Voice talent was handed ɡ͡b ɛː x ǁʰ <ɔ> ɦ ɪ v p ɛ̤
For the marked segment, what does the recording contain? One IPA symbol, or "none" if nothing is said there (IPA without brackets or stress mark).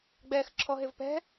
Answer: ɔ